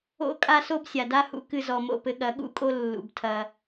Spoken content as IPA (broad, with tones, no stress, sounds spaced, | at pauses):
o̰˦ kʼ a˧ s o˧ b sʲ a˨ d a˦ h ṵ˨˦ k ɨ˧ z ɔ˨ m o̰˦˨ p ɘ˧ ɠ ɐ˨˦ ɠ ṵ˦ kʼ o˦ lː ṵ˨ b tʰ ɐ˧